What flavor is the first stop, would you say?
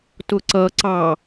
plain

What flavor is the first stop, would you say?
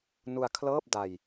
aspirated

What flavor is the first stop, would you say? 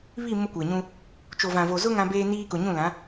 plain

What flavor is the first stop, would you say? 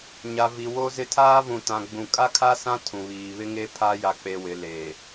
aspirated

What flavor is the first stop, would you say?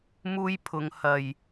aspirated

